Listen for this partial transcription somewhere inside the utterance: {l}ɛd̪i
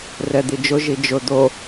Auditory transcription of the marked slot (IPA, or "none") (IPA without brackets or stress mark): r